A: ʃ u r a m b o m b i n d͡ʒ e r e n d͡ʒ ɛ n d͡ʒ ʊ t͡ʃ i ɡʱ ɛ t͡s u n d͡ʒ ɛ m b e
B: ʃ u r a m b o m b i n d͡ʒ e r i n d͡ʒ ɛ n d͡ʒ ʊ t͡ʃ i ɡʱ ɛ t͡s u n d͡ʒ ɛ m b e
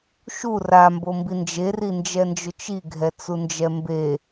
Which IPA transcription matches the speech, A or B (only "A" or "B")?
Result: B